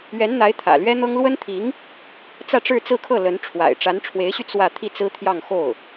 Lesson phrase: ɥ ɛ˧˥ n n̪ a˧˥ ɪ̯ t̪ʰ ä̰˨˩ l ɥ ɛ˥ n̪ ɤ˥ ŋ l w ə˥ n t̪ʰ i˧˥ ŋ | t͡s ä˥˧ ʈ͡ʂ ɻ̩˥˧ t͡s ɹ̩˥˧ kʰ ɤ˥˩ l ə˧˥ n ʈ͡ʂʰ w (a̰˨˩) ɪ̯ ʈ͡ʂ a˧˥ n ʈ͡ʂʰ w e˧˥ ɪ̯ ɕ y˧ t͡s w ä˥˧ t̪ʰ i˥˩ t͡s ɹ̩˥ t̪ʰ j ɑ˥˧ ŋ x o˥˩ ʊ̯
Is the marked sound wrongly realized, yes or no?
no